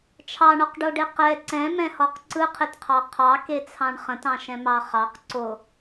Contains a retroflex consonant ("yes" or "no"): yes